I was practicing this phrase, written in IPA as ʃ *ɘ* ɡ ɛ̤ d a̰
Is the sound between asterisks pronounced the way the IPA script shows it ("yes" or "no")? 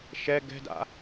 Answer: no